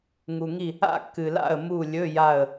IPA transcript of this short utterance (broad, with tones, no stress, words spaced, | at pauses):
ŋu˨ŋi˦˨ | a̰˦˨kːɨ˨la̰˦˨ə̯ mu˦˨lʲɵ˧˥˧ja˦˨ə̯